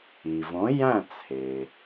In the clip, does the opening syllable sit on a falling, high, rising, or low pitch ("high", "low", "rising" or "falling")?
low